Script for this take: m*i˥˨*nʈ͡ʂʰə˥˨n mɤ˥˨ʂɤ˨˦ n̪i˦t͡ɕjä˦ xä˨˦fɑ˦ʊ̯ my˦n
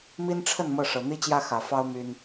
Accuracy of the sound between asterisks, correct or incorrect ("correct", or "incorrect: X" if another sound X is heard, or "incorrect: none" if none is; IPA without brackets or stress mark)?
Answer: incorrect: i˦